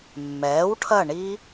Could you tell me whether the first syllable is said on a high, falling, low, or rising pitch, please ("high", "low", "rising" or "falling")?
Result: rising